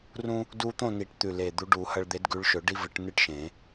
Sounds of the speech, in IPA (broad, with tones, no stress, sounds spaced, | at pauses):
r ũ˦ | d u˦ t̪ õ˥˨ n i˨˩˦ ʈ t̪ ʉ˨˩ l e˨˩ d̪ u˨˦ ɖ u˨˩˦ h ɐ˦ ɭ d̪ e˨˦ d ɡ ʉ˨˦ ɭ ʃ ɵ˨˩˦ ɖ i˦ v ɨ˨˩˦ ʈ n ɨ˥˨ ʈ ʃ ẽ˨˩˦